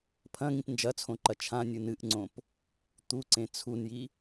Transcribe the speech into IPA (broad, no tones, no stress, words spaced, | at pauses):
pʰɐ̃ŋĩp nd͡ʒɐt͡sʰõǃɐ t͡ʃʰãnʲɨ nɨʔŋ͡ǀõp | t̪uǀẽ t͡sʰunji